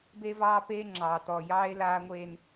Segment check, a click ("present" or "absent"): present